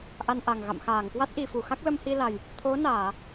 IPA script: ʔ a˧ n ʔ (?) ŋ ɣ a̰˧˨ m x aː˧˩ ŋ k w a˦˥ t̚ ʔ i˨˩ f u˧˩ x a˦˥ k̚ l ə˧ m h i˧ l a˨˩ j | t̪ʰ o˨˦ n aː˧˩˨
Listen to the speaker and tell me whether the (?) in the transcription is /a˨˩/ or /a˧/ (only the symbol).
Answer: a˨˩